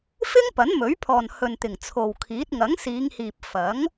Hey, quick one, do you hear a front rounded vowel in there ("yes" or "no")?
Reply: no